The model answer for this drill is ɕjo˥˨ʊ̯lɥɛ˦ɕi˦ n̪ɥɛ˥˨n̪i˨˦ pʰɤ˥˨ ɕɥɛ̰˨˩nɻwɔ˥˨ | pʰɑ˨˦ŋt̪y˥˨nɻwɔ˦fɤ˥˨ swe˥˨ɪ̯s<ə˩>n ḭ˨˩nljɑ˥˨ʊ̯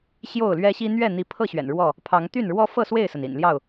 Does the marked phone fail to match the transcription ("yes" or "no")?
no